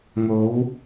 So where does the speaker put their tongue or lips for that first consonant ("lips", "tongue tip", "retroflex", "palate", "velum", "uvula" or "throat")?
velum